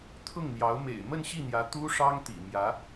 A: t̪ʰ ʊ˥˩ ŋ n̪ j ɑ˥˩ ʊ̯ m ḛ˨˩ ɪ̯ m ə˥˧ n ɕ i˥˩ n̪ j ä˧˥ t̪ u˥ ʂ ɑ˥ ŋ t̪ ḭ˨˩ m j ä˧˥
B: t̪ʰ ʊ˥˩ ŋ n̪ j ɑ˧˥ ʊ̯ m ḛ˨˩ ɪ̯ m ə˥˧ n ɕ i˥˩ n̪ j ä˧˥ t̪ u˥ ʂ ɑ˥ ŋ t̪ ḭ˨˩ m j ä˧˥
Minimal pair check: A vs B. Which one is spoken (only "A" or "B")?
B